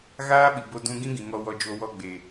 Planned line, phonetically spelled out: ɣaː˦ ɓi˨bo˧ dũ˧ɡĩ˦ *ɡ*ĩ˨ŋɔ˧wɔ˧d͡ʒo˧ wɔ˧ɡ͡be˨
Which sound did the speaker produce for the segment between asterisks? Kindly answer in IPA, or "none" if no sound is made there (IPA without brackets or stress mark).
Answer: ɡ